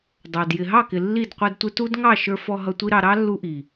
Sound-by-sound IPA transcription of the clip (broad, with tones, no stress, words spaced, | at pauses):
dˤɑ˨d jɪ˨ɦɑ˦˨kɪ˨ lːi˦˨dqʷɛ˧dtʷɪ˦ tu˦dŋɑ˦˨ʃə˞˧fɔ˧ ɦʌ˧tʷi˦ɾɑ˧ ɾɑ˦ lːu˦ʔi˨